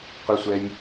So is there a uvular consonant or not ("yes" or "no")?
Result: yes